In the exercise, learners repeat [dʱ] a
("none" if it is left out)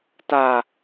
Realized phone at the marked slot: t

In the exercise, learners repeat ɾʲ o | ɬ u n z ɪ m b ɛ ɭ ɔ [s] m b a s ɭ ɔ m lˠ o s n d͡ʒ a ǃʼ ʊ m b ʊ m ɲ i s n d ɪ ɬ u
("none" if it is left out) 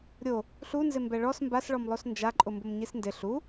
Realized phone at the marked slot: s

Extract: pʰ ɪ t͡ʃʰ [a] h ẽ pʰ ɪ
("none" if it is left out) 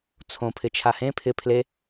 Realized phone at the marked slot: a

